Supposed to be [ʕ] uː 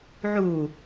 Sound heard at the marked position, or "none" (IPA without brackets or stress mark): ʕ